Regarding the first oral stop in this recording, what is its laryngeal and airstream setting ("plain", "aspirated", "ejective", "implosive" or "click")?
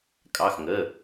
ejective